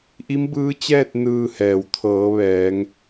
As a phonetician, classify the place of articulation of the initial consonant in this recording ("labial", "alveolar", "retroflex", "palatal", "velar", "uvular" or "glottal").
glottal